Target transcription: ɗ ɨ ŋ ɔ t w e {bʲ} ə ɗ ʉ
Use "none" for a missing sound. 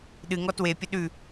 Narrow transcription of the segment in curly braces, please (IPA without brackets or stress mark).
pʲ